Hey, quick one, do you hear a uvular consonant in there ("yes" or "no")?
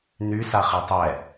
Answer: yes